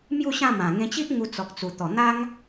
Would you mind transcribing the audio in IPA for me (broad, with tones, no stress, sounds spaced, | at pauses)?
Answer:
m j u˥˧ ɕ ã˥˧ m ã˨˩ ŋ ẽ˧ t͡ɕ i˦ ʔ ŋ u˧ t͡s ɔ˨ k̚ t͡s u˨˩ t̪ ɔ˨˩ n̪ a˦ ŋ